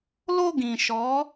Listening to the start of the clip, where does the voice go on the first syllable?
high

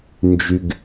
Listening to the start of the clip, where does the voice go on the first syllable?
low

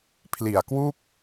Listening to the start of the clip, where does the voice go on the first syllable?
low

